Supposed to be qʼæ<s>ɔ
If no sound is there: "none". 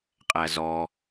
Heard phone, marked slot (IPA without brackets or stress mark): z